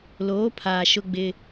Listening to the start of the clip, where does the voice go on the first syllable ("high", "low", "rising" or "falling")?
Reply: rising